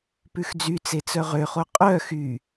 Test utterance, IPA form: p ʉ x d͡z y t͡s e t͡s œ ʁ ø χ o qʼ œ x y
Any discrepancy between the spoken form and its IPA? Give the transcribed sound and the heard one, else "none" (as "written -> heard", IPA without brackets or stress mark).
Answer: none